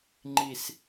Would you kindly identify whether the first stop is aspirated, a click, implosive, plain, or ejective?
click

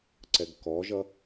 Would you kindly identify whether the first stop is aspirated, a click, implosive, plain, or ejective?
click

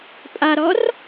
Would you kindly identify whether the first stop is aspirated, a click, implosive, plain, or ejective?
ejective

